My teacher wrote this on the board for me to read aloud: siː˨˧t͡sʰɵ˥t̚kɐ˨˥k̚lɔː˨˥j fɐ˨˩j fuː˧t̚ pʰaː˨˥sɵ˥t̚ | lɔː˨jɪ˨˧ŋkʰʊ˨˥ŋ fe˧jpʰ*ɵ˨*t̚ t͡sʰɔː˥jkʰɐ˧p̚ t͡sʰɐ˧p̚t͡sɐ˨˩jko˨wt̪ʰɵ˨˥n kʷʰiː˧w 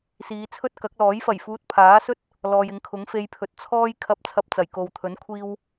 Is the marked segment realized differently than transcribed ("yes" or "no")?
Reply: no